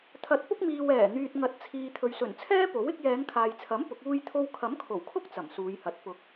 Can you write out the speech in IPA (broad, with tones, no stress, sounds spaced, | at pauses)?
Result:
t̪ʰ ɐ˨˥ t̚ p ʊ˥ k̚ m iː˨ w ɛː˨˩ n̪ yː˨ t̚ ŋ ɐ˨˥ t̚ t͡sʰ iː˨ t̪ʰ ɵ˨ ɥ s ɵ˨˩ n t͡sʰ ɛː˥ p o˨˥ w ɪ˨˥ k̚ j ɛː˨˧ ŋ kʰ aː˨ j t͡sʰ ɐ˨˥ m p ʊ˨˥ k̚ uː˥ j t̪ʰ o˥ w kʰ ɐ˨˥ m kʰ o˨˩ w kʰ ʊ˥ k̚ t͡s ɐ˨˩ m s uː˨˧ j h ɐ˨˥ t̚ p ʊ˨˥ k̚